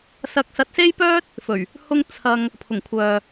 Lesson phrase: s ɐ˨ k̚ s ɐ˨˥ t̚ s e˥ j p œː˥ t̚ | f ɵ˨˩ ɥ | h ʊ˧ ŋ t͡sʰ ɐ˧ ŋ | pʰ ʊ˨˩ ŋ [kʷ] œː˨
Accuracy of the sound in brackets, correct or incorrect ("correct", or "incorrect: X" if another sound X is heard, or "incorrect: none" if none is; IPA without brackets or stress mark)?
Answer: incorrect: kʷʰ